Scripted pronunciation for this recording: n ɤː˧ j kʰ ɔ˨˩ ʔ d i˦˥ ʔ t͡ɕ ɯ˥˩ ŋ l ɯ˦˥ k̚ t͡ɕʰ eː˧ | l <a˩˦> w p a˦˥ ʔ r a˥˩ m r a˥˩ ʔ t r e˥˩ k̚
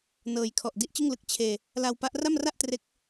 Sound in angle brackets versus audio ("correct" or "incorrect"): incorrect